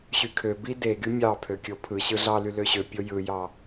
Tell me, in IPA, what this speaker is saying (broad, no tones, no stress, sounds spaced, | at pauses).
ɕ y kʰ ø b i d e ɡ y mʲ ɑ pʰ ø kʲ o pʰ ɯ ɕ ɯ ɮ ɑ l y l ø ɕ ø pʲ o j ɯ j ɑ